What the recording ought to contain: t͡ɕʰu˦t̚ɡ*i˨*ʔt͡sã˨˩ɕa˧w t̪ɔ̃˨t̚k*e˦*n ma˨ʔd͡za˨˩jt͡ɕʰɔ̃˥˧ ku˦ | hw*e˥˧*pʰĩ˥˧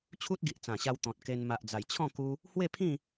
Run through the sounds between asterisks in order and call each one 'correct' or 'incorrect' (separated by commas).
correct, incorrect, correct